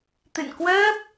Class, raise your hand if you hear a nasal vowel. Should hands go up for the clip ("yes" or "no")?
no